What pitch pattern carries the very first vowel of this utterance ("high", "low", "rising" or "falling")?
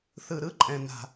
low